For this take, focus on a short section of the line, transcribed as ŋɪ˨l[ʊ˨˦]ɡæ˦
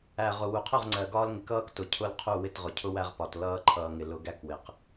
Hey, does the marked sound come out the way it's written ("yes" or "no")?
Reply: yes